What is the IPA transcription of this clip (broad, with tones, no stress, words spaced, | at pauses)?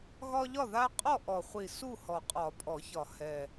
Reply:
ɣɒ˦ʎɒ˥˨ða˦ qʼɔ˥˨ʔɔ˨˩χʷi˨˩ su˥˨hɔ˨˩qʼɒ˨˩˦ pʼɔ˨˩˦çɒ˨˩ hɛ˨˩